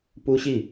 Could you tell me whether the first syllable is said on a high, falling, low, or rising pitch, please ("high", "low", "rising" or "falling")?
high